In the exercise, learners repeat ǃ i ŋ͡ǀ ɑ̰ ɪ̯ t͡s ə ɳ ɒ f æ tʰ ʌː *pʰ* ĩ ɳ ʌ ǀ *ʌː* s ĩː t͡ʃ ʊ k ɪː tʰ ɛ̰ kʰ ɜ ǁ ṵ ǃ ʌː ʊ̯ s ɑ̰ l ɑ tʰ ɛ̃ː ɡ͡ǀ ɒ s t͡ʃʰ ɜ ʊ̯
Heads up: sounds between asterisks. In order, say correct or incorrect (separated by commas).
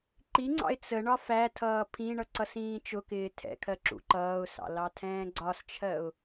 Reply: correct, incorrect